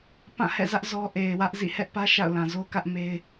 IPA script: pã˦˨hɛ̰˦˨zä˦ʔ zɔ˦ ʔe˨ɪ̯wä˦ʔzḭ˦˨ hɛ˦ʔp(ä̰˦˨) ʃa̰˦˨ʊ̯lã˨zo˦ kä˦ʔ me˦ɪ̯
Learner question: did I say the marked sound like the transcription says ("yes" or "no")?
no